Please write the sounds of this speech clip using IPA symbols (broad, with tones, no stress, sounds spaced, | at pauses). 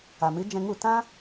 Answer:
a˨ m ɨ˨˦ d͡ʒ ɛ̃˧ ŋ u˦˨ t ã˦